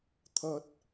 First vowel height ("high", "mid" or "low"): low